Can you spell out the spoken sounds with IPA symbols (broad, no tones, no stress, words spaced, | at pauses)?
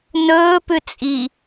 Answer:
nɵːpʉ t͡sʼi